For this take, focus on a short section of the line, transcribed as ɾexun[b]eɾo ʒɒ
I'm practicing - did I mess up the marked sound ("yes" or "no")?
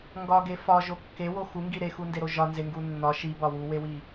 yes